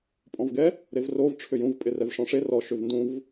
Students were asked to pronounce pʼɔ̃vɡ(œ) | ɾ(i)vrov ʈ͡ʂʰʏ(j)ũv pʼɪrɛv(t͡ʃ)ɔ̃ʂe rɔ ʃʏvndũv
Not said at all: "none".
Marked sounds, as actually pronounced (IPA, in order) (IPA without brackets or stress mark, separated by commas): ɛ, e, j, ʂ